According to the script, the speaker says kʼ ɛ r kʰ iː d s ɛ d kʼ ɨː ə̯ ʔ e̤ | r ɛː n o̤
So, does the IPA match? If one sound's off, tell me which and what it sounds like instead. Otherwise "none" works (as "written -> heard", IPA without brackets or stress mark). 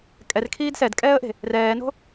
ɨː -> ɛː